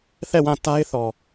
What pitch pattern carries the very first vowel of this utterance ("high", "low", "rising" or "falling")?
falling